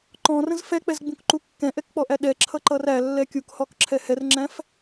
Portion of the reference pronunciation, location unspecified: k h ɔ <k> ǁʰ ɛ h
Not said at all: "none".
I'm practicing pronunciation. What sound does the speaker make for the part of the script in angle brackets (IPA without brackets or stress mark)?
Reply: k